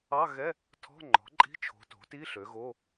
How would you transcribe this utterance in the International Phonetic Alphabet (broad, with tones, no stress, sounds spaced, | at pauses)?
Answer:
ɑ˧˥˧ ɣ ɛ˧˥˧ | tʰ ɔ̤˧˥˧ ŋ͡ǃ ɔ̤˩˥ ǃʼ i̤˧˥˧ t͡ʃʰ o̤˩˥ t o̤˩˥ t i˧˥˧ ɬ ø˩˥ ɣ o˧˥˧